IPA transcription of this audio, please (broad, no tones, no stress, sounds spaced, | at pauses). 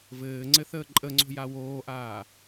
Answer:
v ɘː ŋ͡ǀ ɘ θ əː ǃʼ ə ŋ͡ǀ o̤ j a w oː ʔ aː